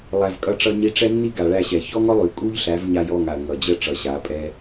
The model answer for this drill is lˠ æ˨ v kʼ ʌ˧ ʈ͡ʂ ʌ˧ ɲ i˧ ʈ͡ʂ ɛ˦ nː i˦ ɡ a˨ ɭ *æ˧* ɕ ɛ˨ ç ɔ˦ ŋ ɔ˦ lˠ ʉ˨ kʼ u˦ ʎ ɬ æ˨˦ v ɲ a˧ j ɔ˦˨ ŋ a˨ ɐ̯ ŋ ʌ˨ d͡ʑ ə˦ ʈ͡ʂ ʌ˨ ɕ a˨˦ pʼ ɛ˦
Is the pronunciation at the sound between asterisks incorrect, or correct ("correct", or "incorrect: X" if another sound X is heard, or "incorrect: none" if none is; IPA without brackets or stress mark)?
correct